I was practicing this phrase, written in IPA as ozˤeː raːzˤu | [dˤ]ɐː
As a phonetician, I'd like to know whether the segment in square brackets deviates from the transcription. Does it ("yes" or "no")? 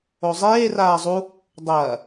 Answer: no